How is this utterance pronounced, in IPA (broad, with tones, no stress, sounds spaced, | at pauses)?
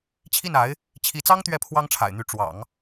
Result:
t͡ɕʰ i˥˩ n a˧˥ ɪ̯ | t͡ɕʰ i˧˥ t͡s ɑ˥ ŋ t̪ ɥ ɛ˥˩ pʰ w ɑ˥ ŋ ʈ͡ʂʰ a̰˨˩ ɪ̯ n̪ y˧˥ ʈ͡ʂ w ɑ̰˨˩˦ ŋ